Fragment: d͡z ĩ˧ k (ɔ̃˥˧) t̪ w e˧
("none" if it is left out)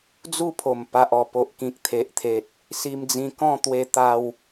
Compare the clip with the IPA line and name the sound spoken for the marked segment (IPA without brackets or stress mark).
ɔ̃˥˧